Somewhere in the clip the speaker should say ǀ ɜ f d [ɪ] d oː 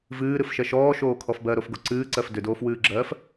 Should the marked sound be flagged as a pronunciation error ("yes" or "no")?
yes